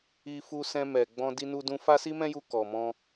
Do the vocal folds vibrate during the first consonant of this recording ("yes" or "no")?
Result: no